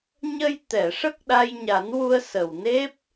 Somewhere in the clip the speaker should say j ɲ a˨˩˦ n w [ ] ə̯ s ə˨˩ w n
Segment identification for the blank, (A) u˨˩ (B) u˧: B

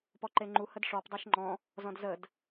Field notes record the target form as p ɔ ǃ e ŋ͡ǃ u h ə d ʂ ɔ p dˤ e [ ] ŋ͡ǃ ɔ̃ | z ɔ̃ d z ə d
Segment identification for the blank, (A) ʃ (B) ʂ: A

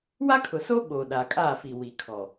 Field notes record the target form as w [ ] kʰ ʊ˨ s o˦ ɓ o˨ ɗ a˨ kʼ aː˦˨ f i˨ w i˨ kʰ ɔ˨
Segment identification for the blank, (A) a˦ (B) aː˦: A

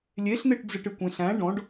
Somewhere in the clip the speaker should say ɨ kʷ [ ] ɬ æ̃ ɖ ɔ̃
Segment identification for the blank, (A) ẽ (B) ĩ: A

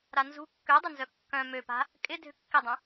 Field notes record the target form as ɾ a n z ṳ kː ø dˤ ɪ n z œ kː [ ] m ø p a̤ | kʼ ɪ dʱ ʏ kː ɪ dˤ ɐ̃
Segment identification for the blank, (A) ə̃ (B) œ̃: B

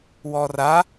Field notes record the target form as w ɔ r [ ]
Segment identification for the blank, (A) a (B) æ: A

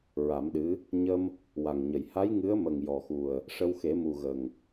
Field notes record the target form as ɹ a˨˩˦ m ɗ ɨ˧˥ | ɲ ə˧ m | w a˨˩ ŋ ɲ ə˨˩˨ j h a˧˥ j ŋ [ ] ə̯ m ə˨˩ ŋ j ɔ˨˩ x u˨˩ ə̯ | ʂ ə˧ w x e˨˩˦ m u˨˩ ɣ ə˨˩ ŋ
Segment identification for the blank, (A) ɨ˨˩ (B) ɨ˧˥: B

